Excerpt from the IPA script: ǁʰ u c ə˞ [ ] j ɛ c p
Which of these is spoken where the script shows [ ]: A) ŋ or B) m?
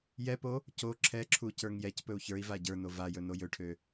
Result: A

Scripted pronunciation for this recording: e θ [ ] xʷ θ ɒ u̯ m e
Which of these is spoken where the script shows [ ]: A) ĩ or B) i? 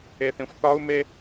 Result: A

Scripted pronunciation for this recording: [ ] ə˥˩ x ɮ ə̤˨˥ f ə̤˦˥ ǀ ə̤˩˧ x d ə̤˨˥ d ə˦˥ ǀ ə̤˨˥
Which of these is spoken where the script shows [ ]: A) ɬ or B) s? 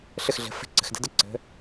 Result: A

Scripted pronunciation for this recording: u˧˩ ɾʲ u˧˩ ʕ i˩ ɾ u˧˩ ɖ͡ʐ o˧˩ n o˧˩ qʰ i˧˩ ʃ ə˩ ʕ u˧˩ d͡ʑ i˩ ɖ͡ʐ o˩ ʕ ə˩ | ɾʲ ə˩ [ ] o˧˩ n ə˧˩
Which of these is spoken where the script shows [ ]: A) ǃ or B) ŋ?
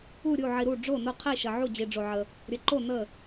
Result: A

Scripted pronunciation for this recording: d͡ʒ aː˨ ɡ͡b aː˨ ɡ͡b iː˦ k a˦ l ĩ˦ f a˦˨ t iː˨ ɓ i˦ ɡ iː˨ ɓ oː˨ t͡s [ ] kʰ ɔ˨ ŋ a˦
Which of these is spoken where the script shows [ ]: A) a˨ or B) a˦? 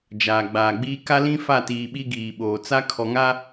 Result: B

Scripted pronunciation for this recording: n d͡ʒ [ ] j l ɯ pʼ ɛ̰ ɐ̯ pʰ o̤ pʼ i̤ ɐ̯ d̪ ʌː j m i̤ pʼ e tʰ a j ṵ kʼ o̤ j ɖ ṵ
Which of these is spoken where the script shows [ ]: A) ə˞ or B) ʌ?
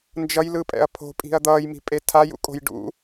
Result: B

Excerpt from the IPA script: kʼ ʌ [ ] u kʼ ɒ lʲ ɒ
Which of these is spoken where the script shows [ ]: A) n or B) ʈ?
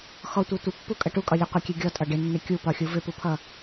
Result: B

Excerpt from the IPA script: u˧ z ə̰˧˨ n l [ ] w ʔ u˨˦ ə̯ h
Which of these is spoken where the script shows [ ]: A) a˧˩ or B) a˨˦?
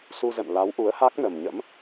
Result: B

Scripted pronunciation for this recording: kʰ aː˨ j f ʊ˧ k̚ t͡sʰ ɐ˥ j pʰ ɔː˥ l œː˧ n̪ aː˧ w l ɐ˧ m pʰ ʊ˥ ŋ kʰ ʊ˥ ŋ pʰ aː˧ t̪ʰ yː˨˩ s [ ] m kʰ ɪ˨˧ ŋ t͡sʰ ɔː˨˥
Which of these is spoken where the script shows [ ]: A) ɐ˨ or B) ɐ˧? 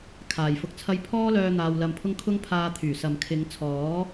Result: A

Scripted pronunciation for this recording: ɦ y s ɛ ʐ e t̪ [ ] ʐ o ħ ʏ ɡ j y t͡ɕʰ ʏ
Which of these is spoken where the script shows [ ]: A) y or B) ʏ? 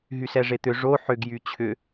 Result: B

